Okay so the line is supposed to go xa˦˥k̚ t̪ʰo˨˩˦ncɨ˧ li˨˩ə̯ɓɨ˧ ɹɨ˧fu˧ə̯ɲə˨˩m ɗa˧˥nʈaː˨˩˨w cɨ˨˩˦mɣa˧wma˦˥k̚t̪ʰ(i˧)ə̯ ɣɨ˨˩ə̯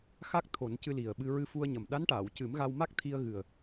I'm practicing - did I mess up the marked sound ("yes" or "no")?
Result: no